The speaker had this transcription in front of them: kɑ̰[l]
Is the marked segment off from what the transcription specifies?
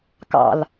no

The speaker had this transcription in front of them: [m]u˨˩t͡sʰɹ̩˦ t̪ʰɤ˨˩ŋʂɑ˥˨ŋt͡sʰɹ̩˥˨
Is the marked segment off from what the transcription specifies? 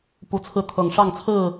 yes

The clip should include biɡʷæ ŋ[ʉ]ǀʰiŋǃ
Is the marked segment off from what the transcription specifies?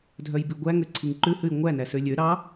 yes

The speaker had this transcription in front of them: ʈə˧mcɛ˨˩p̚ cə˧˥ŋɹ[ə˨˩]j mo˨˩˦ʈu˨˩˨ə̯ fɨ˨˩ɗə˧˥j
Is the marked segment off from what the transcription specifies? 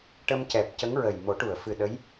no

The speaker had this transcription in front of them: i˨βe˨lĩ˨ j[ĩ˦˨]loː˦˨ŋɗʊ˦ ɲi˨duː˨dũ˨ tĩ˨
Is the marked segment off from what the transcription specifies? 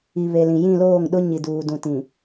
no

